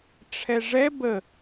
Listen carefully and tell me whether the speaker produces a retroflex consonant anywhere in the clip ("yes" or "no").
yes